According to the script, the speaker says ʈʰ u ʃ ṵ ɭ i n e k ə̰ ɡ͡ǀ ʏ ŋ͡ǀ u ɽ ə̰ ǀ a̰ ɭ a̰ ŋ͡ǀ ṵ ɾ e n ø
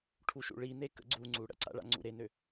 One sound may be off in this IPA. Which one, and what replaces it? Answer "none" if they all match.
ʏ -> u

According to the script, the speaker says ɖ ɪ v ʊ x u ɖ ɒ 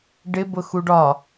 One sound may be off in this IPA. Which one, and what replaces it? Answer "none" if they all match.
v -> b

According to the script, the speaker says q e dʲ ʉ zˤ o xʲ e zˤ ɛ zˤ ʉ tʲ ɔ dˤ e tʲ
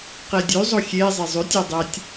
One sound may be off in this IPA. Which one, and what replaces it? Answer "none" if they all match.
ɛ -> e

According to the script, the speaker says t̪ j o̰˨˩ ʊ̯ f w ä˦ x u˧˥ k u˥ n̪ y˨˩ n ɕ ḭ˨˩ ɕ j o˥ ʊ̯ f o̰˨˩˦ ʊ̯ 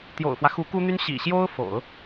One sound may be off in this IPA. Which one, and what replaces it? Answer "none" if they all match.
y˨˩ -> y˥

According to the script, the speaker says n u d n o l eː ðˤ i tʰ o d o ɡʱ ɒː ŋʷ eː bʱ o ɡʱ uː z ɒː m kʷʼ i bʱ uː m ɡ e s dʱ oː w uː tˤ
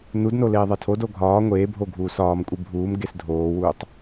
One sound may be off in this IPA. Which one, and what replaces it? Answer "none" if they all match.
z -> s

